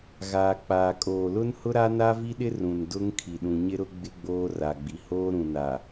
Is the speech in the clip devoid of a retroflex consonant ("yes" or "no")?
yes